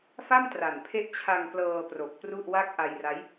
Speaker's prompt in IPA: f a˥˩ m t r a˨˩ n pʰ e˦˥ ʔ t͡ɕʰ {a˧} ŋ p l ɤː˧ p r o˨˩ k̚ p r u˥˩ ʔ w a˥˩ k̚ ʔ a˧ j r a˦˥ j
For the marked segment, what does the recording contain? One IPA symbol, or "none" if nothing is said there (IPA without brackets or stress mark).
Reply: a˧